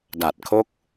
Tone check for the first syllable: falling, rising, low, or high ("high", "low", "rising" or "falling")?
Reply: low